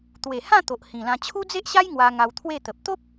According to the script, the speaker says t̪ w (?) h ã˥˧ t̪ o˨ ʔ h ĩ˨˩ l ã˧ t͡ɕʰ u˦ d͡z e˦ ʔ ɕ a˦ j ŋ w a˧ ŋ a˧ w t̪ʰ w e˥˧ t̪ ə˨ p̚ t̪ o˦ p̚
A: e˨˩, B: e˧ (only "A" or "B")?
A